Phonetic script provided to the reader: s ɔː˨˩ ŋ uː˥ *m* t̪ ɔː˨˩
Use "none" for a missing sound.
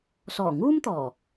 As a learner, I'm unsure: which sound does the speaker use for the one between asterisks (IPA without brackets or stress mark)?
m